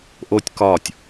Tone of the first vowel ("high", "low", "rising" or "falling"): high